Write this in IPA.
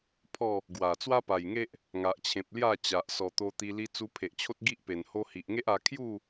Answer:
pʰ ɔ˥˧ | ɡ w a˨˩ t͡s w a˦ p a˨˩ j ŋ e˦ ʔ | ŋ a˨ ʔ t͡ɕʰ ẽ˨ p̚ l j a˥˧ t͡ɕ a˨ ʔ s ɔ˨˩ t̪ o˧ t̪ i˧ l i˧ t͡s u˧ pʰ e˨ ʔ t͡ɕʰ o˦ t̚ ɡ i˦ ʔ p e˨˩ n h o˧ h i˨ ʔ ŋ e˦ ʔ a˧ kʰ j u˥˧

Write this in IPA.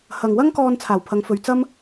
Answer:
h ɐ˨ ŋ w ɐ˥ ŋ k ɔː˧ n t͡sʰ aː˨˩ w pʰ ɐ˨˧ ŋ f ɵ˨ ɥ t͡s ɐ˥ m

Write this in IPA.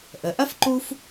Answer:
ʔ ə˩ ʔ ɐ˥ f ǃ u˦ f

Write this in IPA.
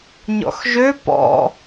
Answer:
ɲ ɔ̰ x ʒ ø p ɔ̰

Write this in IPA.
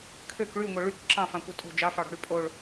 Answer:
kʰ ø k ɭ y ŋʷ œ ɭ y k ǁ ɑ̃ f ɑ̃ kʷ œ tʼ o̤ d͡ʒ ɑ f ɑ ɽ ɔ̤ ɽ y pʼ o ɭ

